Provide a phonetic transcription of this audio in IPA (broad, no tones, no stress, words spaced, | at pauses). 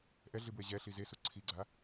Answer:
ʔɛɮɨbwe ʑɛɬi zesu ǀʰiɡ͡ǀa